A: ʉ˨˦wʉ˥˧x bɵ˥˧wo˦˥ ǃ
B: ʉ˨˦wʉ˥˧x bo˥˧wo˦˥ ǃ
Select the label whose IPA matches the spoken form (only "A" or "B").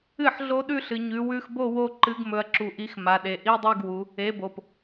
B